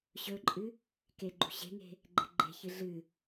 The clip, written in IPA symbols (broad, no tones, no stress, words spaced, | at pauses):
ɕɵǃʼɨ | ke ɡ͡ǃṳɕe̤ŋe̤ | ɡ͡ǃe̤ɡ͡ǃe̤çɨ ɮɨ